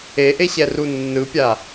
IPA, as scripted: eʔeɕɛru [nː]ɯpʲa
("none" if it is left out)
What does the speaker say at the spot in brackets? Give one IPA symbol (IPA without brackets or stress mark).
nː